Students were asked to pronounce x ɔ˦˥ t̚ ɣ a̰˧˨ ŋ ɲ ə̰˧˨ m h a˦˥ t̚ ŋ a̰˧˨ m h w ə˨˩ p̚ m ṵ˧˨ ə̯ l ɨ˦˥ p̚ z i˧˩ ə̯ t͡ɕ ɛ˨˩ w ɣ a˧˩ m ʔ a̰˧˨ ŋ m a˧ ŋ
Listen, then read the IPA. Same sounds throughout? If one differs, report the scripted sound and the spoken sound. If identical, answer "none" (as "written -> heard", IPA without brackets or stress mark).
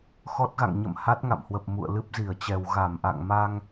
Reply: none